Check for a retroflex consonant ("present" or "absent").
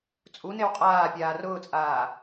absent